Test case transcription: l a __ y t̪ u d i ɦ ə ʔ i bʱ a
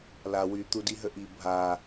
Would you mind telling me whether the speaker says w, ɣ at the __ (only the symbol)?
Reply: w